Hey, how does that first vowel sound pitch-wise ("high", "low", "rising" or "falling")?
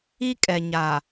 high